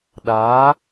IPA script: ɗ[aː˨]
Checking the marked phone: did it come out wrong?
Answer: yes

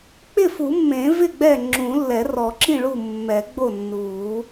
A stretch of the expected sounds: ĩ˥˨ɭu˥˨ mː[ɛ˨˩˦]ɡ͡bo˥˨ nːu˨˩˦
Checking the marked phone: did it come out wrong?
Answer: no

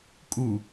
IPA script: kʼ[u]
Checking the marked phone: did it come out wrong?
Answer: no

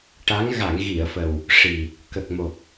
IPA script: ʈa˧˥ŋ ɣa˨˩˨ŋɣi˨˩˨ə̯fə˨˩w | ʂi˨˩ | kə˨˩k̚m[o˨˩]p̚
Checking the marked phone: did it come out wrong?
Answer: no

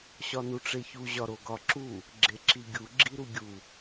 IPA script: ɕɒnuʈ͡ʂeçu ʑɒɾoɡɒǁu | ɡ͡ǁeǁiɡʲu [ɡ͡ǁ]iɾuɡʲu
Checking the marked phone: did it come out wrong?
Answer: no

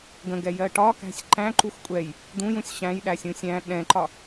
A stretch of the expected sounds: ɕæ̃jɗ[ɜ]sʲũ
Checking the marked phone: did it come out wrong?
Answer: yes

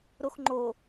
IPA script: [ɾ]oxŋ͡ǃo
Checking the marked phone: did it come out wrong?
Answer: no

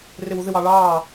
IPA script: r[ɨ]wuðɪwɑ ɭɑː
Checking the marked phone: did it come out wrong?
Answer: yes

